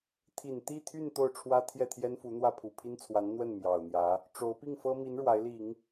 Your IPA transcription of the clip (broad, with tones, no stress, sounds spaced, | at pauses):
t̪ʰ i˨˩ n t̪ i˥˧ t̪ʰ y˥˧ n t̪ o˥˩ ʊ̯ ʈ͡ʂʰ w ä˥ t̪ʰ j ɛ˥˩ t̪ʰ j ɛ˥ n f u˧˥ n̪ w ä˥˩ pʰ u˨˩ pʰ i˥ n t͡sʰ w a˧˥ n n̪ w ə˥˩ n m j ɑ˨˩ ʊ̯ n̪ j ä˧˥ | ʈ͡ʂ o˧˥ ʊ̯ p i˥˩ ŋ f ɤ˥ m i˧˥ n ɻ w a˧˥ ɪ̯ l i˨˩˦ ŋ